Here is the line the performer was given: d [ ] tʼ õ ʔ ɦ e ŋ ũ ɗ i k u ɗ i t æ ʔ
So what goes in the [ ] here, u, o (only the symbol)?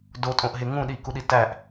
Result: o